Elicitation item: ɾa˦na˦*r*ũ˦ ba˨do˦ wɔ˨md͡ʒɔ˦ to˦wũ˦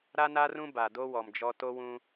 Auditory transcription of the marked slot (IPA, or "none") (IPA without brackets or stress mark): r